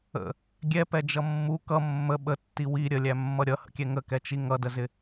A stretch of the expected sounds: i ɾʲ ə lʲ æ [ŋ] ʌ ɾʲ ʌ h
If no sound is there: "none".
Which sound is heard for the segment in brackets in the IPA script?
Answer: mː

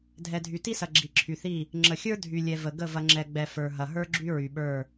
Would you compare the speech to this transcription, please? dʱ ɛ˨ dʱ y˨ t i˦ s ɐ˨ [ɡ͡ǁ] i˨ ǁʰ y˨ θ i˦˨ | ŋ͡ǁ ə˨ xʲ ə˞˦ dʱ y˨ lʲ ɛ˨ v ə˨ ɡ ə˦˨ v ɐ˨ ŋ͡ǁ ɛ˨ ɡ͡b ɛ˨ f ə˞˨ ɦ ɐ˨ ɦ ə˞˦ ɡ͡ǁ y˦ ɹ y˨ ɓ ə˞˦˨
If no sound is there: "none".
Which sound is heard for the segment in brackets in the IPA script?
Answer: ɡ͡ǁ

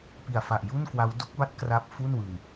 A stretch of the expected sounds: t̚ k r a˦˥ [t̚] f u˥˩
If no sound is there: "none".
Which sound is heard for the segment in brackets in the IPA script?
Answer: p̚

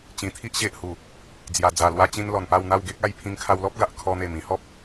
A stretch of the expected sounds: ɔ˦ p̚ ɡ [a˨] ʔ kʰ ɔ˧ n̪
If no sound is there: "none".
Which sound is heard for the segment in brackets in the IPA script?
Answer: a˨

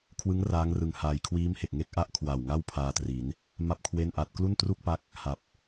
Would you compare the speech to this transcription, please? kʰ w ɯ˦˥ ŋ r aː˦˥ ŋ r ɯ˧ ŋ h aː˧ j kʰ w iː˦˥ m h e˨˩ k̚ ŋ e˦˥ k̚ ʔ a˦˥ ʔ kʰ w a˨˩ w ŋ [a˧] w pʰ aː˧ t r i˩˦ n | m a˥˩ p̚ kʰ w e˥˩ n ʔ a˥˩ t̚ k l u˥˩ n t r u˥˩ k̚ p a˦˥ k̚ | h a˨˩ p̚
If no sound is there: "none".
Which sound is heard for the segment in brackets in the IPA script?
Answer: a˥˩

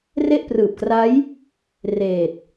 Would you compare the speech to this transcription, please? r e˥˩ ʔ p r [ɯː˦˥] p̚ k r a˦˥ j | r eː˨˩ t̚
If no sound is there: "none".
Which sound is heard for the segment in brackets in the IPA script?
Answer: ɯː˨˩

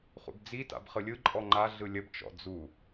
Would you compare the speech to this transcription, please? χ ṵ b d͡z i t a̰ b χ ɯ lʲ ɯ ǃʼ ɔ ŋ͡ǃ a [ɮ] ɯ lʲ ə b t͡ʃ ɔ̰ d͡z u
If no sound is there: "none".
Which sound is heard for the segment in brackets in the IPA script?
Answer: ɮ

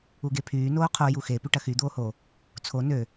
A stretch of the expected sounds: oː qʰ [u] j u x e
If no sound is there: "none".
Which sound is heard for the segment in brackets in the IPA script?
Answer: o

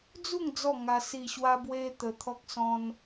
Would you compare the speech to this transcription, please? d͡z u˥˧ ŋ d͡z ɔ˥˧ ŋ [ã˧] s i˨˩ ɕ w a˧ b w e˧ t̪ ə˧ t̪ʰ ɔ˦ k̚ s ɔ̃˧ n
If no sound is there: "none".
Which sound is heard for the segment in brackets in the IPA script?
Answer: a˧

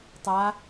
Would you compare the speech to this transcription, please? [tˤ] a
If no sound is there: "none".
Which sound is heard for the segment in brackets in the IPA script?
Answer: tˤ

